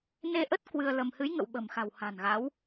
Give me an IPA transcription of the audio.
n e˧ ʔ ə˦˥ t̚ k w ɨ˧ ə̯ l ə˧ m h ɨ˨˦ j ŋ ə̰˧˨ w ɓ ə̤˨˩ m x a̤˨˩ w h a̤˨˩ n ɣ a˨˦ w

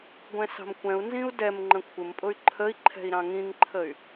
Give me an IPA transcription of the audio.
ɡʷ ɛ̃ s ɑ̤ m kʷ ɛ̃ u̯ n z ĩ u̯ d ɛ m ŋ͡ǃ ə̃ kʷʰ ɪ m pʼ ʊ y̯ ǃʰ ə i̯ ǃʰ ɛ̤ i̯ ɾ ɑ̃ ŋ ĩ ŋ ǃʰ ə y̯

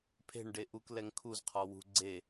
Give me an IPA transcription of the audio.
pʰ e̤ ɳ ɖ e ʔ u k l ɛ ŋ kʰ u z qʰ ɔ w ṳ ɡ͡ǀ e

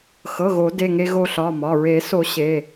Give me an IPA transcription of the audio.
x ɤ˩˧˩ ɣ o˨˩˦ d e˩˧˩ ŋ e˧ ɣ o˧ ɬ ɒ˩˧˩ m ɒ˩˧˩ ɹ e˨˩˦ s o˨˩˦ ɕ e˩˧˩

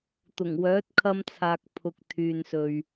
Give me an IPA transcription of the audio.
t̪ ʊ˨˩ ŋ w œː˨˥ t̚ kʰ ɐ˧ m t͡sʰ aː˨ k̚ pʰ ʊ˨ k̚ t̪ʰ yː˨ n s ɵ˨ ɥ

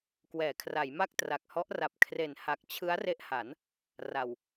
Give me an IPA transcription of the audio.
k w ɛː˩˦ kʰ r a˩˦ j m a˥˩ k̚ t r a˨˩ k̚ h ɔ˦˥ ʔ r a˨˩ p̚ kʰ r e˨˩ n h a˨˩ k̚ t͡ɕʰ ɯ˦˥ a̯ r e˦˥ ʔ h a˩˦ n | r a˨˩ w

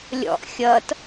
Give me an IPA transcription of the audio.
lʲ ɔ̰ ʔ xʲ ʌ t

